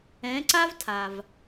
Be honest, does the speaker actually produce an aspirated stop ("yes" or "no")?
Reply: yes